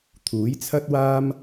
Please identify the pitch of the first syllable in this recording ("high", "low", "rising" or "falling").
rising